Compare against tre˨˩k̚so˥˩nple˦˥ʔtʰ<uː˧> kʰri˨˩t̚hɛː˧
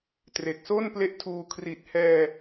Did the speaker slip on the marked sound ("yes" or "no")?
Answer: no